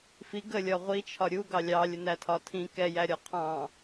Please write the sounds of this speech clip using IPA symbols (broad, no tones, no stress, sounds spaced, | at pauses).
f i ɡ ə lʲ ɒ ʁʷ i t͡ʃʰ ɒ ɾʲ u ɡ ɑ lʲ ɑ lʲ ə n æ tʰ ɒ tʰ ĩ k ɛ j æ ɾʲ ɒ qʰ ɑ̃